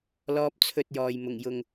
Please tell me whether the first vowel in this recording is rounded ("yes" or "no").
yes